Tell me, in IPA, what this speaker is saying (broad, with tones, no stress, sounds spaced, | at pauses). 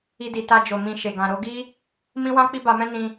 i˧ d i˨ t a˧ d͡ʒ o˨ m ĩ˧ ʃ e˨ ɡ ã˨ ɾ o˨˦ ɡ i˦ | m ĩ˦ w ã˦ k͡p i˦ b a˧ m ɛ̃˦ n ĩ˧